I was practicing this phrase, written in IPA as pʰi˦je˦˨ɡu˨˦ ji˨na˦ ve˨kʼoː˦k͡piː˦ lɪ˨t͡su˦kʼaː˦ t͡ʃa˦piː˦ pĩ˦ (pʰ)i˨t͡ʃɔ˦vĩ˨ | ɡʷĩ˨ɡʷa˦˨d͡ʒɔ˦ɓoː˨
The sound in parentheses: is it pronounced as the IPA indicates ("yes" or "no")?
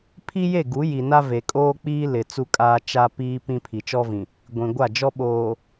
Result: yes